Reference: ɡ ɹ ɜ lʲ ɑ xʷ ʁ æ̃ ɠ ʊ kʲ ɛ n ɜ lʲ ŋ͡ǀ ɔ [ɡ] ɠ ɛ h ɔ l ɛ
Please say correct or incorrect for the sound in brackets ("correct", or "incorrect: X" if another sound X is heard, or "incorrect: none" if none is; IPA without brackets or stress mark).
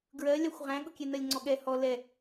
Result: incorrect: none